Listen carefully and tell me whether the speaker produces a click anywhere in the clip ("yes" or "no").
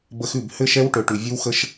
no